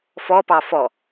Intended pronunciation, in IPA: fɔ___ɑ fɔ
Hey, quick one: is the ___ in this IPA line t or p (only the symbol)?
p